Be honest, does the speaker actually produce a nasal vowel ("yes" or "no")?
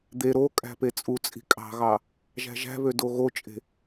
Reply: no